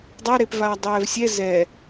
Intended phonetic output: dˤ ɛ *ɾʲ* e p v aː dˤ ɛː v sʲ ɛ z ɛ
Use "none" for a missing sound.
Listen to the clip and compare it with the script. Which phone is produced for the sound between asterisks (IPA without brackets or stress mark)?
ɾ